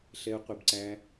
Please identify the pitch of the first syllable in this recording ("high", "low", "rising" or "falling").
high